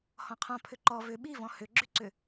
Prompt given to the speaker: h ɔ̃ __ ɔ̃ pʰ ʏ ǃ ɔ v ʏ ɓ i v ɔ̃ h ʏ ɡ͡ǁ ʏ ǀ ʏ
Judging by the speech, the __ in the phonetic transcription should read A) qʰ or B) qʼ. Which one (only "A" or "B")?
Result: A